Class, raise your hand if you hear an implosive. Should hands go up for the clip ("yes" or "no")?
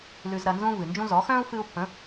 no